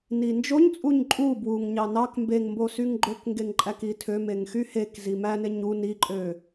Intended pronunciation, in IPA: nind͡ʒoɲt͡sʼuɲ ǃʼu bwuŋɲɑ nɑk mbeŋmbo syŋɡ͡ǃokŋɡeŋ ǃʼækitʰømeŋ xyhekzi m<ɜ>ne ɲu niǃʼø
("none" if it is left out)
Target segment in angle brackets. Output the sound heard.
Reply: æ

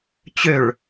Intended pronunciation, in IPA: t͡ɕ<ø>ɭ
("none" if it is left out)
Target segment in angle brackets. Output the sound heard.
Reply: ø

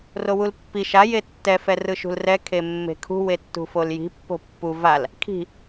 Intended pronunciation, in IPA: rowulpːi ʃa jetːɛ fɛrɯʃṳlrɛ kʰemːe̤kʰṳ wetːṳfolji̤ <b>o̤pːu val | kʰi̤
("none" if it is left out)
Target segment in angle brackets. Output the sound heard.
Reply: pː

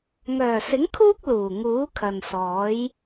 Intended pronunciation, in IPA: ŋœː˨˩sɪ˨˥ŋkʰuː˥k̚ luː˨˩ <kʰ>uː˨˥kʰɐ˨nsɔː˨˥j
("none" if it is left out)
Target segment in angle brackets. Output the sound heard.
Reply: ŋ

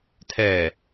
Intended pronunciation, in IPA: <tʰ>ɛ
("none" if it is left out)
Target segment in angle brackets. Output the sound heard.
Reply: tʰ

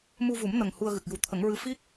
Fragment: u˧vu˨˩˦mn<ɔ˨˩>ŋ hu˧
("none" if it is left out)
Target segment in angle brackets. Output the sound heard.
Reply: ə˨˩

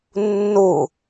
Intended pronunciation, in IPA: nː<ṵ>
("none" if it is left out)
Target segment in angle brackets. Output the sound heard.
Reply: u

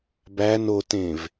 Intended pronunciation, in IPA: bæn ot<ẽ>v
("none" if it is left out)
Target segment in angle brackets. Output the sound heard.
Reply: ẽ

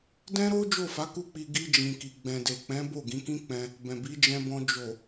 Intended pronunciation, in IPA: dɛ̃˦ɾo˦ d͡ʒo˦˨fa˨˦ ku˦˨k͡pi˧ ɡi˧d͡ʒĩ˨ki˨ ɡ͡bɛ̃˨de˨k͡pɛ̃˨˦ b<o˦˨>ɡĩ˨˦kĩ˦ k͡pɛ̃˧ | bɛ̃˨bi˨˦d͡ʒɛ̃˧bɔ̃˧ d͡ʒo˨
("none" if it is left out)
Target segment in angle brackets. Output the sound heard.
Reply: o˦˨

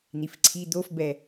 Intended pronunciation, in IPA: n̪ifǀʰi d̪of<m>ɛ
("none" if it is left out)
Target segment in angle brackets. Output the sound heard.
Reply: b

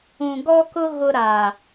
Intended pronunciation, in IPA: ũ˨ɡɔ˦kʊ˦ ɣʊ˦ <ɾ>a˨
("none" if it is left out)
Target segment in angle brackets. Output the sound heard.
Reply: ɾ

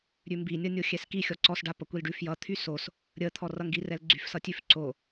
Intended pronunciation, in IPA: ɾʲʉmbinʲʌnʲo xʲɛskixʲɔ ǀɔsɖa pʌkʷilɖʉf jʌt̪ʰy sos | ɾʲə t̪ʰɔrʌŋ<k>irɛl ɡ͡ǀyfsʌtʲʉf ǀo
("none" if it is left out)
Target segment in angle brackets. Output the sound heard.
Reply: ɡ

